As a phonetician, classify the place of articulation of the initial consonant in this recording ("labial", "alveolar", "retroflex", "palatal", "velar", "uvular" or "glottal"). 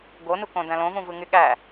velar